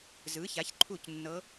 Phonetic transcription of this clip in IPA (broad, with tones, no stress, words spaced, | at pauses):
zɯ˩˥ça˩˥çǃʰu˥˩c nːɤ˧˥